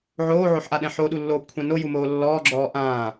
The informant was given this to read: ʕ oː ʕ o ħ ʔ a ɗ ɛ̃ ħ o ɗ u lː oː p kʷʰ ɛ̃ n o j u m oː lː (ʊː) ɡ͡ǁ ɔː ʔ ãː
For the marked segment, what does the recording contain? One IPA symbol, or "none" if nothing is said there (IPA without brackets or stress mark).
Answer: ɔː